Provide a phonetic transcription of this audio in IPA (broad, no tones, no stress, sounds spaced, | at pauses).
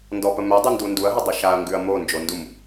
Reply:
n d ɔ p ə m ɛ dˤ u n d u n d u ɐ̯ ɦ ə dˤ ə ʃ a ɐ̯ ŋ ɡ ʉ ɐ̯ m o n d͡ʒ o n d u m